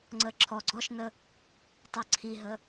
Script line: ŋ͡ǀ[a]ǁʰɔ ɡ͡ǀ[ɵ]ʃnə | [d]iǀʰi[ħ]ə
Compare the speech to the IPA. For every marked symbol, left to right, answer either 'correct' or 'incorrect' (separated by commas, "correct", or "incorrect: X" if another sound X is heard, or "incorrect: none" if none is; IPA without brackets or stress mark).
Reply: incorrect: ə, incorrect: ɔ, incorrect: tˤ, incorrect: ɦ